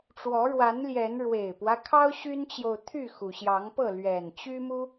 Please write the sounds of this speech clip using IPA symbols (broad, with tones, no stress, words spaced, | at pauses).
ʈ͡ʂwɔ˨˦ɻwa˨˦nljɛ˨˦n ɻwe˨˩ɪ̯pwä˦kʰɑ˦ʊ̯ ɕy˦nt͡ɕjo˨ʊ̯ t̪ʰy˥˨xu˩ ɕjɑ˨˦ŋpɤ˥˨ lɥɛ˨˩n t͡ɕy˦mu˦